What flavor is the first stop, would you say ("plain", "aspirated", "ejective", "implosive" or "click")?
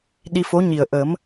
implosive